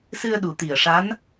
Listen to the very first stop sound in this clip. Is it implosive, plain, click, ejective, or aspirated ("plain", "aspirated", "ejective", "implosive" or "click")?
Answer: implosive